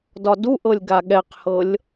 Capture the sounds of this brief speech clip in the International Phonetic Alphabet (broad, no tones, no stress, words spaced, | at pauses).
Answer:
dɒduʔɤlʲ ɡaɠɛqhɤlʲ